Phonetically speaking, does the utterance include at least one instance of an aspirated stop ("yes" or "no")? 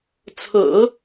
yes